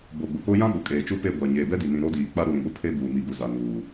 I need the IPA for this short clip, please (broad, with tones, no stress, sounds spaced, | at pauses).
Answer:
b o˨ ɡ͡b ʊ˨ k o˦ j ã˦ ɓ ʊ˨ kʼ eː˨ t͡ʃ u˦ p e˦˨ ɡʷ a˨ ɲ eː˨ b ɛ˦ d i˨ n ĩ˨ ɾ o˦ d iː˨ k͡p a˦ ɾ u˨ ɾ ĩ˨ ɓ ʊ˦ pʰ e˦ b uː˨ m i˨ ɡ u˨ z a˨ n uː˨